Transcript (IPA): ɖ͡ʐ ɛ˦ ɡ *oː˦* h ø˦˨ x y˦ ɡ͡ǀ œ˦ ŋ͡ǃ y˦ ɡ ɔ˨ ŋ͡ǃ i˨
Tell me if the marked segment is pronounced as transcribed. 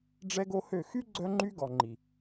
no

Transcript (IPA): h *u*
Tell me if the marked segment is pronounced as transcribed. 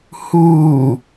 no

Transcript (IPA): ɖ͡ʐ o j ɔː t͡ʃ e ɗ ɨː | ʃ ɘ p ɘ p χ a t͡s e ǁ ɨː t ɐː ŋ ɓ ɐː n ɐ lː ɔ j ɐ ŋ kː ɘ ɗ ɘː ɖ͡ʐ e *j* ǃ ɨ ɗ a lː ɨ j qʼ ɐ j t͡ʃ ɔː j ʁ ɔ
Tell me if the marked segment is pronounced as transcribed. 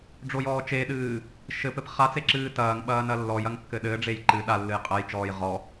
yes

